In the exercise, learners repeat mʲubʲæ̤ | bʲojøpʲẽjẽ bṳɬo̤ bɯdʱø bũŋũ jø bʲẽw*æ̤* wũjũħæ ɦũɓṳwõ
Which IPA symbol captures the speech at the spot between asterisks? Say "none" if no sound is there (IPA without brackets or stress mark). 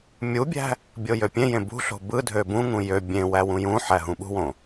æ